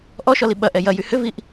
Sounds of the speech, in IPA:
ʔ ɔ ʃ ɔ l i ɓ ɐ ʔ ɛ j ɐ j y h ʏ v i ʔ

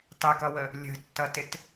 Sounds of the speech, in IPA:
tˤ ɪ k ʌ w ə | lʲ ə̤ tː ʌ t ɪ t

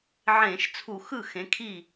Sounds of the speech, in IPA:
ʕ ẽː˧˩˧ ʃ t͡sʰ u˧˩˧ x ɯ˥˩ x ẽ˨˥ kʰ i˥˩

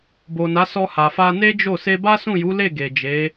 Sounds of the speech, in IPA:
b o˨ n a˨˦ s ɔ˧ h a˨ f a˧ n e˦ d͡ʒ o˦˨ s e˧ b a˦ s ũ˦˨ j u˨˦ l e˦˨ ɡ e˨ d͡ʒ e˨˦

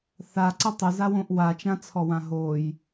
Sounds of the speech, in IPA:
θ a ǀ ə tˤ ə z a w õ ʔ w a t͡ʃ ã t͡sʰ ɔ w ã ɦ o j

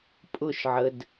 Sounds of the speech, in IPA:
pʼ ʊ ʃ ʕ ə d

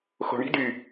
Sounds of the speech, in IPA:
x o̤ ɳ i̤ d y

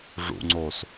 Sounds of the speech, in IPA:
ʐ ṵ ŋ͡ǀ oː s

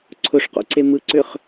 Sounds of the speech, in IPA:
ǀʰ ʊ ʂ q o̰ ǀ e m ɯ ǀ ʏ χ

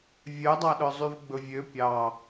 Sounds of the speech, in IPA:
vʲ œ dˤ ɑ ɗ œ zˤ y v ɡ͡b ɵ vʲ ø pʲ ɑ

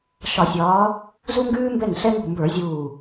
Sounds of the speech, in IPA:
ʃ ɒ˧˩˧ sʲ ɒː˨˦ | z u˥ ŋ ɡ ʉː˥ m b ɛ˥˩ ŋ ɬ ɛ˥ ŋ ṳ˧˩ m b ə˞˧˩˧ zʲ uː˧˩

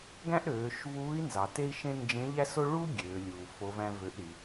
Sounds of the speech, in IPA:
ɡ æ̃˥ ʔ ɾ øː˩˧ ʃ v uː˧˥ i̯ n z ɑ˩ t e˥ i̯ ʃ ẽ˥ n d͡ʒ ẽ˧˥ ʎ æ˥ s o˥ ɭ u˥ ɡʲ øː˩˧ lʲ uː˩ f o˧˥ v æ̃˥ v ø˧˥ ʔ ɾ i˩˧

